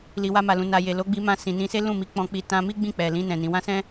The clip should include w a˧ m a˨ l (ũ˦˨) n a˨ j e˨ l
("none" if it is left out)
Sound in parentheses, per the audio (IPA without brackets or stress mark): ũ˨